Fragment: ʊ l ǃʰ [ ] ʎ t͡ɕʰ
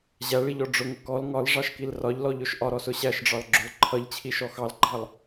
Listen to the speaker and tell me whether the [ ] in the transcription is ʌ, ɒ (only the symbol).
ʌ